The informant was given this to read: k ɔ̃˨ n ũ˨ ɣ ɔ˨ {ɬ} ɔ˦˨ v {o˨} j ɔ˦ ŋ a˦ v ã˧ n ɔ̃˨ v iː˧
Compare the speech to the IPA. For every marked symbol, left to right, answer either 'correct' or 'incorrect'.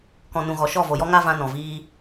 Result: incorrect: ʃ, correct

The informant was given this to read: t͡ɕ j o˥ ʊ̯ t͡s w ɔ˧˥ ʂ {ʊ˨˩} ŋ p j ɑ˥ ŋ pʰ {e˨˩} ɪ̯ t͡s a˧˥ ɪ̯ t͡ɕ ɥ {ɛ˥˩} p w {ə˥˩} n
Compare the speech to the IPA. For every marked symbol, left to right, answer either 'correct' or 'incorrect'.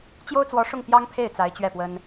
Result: incorrect: ʊ˥˩, incorrect: e˥˩, correct, incorrect: ə˥

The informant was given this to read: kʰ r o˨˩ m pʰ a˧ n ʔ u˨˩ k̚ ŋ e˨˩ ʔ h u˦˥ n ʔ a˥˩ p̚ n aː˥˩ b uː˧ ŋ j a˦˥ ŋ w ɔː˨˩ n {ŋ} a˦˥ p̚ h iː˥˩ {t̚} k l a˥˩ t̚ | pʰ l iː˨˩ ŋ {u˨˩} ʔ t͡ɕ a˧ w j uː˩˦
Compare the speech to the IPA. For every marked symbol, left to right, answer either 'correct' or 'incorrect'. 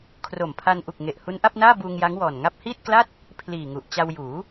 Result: correct, correct, correct

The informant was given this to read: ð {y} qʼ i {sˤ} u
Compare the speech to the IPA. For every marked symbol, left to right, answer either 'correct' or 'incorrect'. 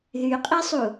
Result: correct, correct

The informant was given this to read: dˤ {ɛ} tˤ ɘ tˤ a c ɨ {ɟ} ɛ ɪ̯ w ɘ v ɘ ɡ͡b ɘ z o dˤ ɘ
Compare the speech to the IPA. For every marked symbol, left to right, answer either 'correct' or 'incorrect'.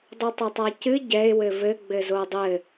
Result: incorrect: ɘ, correct

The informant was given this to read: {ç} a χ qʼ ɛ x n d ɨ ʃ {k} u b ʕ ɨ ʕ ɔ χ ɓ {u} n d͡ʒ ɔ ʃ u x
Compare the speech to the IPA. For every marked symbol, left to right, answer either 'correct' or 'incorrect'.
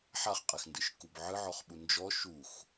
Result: incorrect: ħ, correct, correct

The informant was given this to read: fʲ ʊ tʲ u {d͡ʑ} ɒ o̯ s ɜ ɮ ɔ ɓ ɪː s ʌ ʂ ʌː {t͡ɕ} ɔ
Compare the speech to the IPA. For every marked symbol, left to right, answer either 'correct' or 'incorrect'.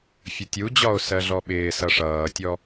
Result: correct, incorrect: tʲ

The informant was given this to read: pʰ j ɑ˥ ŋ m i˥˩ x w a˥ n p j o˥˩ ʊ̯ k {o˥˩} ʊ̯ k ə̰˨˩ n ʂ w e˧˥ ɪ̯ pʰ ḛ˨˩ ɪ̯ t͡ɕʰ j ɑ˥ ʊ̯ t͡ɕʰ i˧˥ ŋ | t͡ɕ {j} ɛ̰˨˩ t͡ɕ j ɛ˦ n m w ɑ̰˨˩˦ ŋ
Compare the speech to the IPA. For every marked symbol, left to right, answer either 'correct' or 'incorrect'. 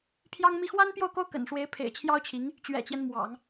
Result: incorrect: o˥, incorrect: ɥ

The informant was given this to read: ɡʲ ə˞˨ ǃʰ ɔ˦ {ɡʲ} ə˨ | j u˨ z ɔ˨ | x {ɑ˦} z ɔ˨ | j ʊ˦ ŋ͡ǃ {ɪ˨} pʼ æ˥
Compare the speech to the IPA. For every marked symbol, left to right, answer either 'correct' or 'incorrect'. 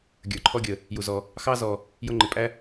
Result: correct, correct, correct

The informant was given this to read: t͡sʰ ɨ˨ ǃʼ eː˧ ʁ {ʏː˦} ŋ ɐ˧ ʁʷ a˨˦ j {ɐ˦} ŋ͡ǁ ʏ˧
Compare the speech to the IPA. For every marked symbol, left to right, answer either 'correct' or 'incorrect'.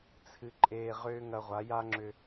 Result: correct, incorrect: a˦

